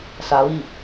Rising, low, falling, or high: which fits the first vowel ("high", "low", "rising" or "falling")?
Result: low